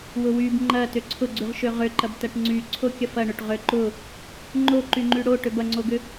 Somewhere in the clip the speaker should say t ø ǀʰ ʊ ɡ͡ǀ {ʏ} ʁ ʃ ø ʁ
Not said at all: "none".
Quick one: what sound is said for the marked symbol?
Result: y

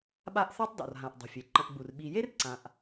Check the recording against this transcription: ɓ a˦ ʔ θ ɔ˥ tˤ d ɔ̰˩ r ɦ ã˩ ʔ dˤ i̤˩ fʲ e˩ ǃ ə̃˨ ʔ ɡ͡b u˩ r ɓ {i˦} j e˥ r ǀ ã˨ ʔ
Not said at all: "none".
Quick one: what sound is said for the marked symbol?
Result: i˨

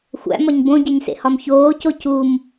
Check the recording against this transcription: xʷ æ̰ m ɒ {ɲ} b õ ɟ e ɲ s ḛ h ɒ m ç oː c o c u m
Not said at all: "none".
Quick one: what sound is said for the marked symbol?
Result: ɲ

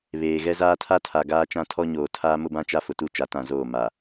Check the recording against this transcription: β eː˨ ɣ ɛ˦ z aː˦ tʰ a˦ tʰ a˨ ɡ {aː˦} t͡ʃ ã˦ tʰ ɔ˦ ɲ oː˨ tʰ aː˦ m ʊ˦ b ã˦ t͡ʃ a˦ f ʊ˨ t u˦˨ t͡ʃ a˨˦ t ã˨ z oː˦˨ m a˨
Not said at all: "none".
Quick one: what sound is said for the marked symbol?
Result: aː˦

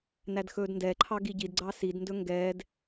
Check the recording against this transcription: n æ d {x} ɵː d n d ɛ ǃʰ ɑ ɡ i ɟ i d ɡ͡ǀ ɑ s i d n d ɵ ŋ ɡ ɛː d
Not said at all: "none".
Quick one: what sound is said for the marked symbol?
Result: x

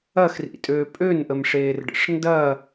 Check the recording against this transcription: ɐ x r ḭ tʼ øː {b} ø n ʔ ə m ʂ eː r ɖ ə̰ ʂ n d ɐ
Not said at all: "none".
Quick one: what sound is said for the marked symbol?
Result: pʼ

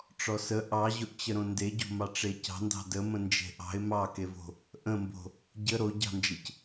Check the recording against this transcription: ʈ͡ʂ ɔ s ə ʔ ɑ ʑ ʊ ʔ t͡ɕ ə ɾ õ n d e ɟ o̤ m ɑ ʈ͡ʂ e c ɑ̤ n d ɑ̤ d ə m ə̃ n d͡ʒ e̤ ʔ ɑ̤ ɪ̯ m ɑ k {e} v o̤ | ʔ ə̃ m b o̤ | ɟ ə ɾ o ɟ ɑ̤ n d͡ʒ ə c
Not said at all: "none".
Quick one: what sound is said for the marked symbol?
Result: e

